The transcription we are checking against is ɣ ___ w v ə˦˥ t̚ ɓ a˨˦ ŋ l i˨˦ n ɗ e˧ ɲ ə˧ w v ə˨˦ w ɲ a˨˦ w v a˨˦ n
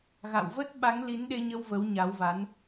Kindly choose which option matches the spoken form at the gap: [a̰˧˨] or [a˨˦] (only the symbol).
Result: a̰˧˨